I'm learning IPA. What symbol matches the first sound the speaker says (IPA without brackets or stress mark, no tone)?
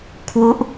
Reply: kʰ